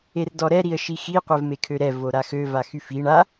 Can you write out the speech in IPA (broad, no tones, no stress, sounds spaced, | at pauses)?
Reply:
e r d ɔ ɾ ɛ ɾ i ə̯ ʃ i x i qʷ ɛ v m e kʰ ø ɾ ɛ v o ɾ a x ø v a x y f i ɳ a